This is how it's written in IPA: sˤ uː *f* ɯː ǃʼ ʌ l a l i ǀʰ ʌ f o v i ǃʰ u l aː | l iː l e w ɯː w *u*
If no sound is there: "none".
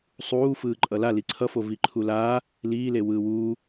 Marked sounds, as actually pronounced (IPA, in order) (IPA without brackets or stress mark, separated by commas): f, uː